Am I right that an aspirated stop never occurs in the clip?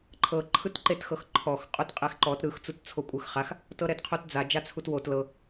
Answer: no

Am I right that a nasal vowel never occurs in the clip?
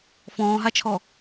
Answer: no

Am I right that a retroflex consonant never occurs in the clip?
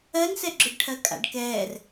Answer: no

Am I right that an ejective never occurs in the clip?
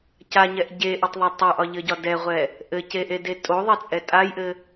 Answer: no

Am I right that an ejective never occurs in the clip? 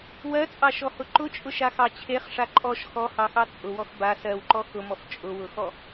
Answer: no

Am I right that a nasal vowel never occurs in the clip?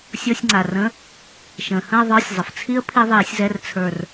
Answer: no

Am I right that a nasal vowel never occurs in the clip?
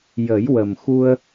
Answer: yes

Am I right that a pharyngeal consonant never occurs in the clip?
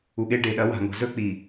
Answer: yes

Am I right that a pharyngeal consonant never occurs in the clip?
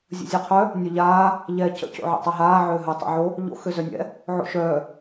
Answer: no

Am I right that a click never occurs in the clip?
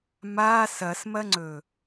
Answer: no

